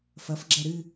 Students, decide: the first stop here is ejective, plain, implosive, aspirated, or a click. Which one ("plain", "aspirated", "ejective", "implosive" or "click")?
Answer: click